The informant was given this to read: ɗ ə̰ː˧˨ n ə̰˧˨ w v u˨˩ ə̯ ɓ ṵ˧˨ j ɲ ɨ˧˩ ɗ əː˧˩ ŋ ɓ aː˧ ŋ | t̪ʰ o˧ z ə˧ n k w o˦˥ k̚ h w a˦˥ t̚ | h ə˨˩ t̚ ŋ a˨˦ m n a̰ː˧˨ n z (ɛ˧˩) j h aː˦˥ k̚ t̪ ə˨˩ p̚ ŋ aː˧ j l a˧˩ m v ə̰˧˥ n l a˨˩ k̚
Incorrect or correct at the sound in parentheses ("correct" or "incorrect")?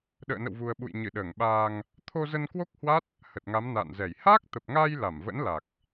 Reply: correct